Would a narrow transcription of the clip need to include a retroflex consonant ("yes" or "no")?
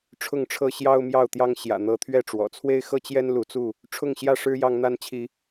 yes